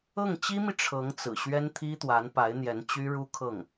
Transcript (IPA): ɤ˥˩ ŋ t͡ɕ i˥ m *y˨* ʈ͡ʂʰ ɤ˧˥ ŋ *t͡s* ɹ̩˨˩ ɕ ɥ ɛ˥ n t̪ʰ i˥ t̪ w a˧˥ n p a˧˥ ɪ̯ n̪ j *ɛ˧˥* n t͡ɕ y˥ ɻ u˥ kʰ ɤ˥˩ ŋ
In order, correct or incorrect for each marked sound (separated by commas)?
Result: incorrect, correct, correct